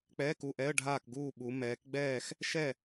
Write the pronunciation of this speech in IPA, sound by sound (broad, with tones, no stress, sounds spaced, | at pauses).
k͡p ɛː˧˥˧ k u˥˨ ʔ ɛ˧˥˧ ə̯ ɖʱ aː˥˨ k ɡ uː˥˨ ɓ u˨˦ m ɛː˨˦ k ɡ͡b ɛː˥˨ x | ʃ ɛ˥˨